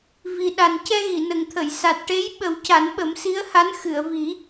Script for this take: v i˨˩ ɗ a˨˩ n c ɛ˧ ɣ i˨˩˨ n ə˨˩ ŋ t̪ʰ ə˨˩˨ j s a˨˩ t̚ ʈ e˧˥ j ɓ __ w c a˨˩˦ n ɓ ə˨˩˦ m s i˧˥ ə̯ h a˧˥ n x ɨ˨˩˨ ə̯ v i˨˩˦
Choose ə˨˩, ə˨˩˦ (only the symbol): ə˨˩˦